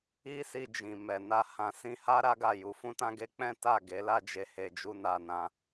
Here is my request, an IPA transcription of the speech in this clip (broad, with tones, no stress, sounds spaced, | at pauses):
i˦ s i˧ d͡ʒ ĩ˨ m ɛ˨ n a˧ h ã˧ s ĩ˧ h a˦ ɾ a˦ ɡ a˦˨ j u˨˦ f ũ˦ t ã˦ ɡ e˦ k͡p ɛ̃˦ t a˦˨ ɡ e˨˦ l a˦ d͡ʒ e˧ h e˧ d͡ʒ u˦ n a˧ n ã˧